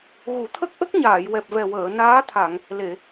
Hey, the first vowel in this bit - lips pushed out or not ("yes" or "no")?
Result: yes